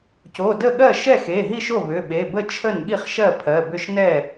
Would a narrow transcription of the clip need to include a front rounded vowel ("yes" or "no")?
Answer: yes